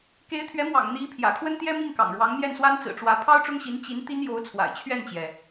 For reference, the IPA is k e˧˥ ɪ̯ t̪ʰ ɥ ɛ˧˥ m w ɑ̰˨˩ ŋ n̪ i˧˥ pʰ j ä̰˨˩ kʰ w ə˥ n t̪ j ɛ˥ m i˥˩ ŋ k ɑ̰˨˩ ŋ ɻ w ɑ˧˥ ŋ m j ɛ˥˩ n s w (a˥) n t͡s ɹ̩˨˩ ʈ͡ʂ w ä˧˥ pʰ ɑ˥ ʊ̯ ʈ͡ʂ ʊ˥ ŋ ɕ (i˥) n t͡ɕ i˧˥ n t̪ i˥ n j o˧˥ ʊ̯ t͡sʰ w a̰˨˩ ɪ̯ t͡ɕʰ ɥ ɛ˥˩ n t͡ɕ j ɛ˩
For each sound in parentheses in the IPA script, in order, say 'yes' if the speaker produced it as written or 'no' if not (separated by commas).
yes, no